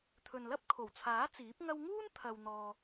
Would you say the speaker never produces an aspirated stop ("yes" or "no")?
no